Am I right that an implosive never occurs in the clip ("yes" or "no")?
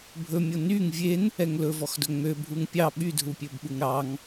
no